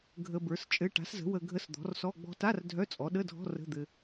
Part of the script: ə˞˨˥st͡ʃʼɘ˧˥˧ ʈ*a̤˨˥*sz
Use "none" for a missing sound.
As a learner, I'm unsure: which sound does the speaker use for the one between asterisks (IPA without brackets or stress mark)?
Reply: a̤˨˥